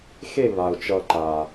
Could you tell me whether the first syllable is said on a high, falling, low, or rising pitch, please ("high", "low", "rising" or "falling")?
falling